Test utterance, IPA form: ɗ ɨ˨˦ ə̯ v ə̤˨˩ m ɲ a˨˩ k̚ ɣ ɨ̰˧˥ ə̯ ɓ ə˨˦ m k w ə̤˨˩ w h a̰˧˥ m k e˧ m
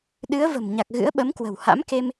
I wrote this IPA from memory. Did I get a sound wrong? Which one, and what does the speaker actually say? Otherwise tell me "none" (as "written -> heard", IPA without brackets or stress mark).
none